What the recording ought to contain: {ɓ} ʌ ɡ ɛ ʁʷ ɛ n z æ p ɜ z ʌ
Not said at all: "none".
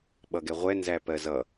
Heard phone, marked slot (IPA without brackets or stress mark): ɓ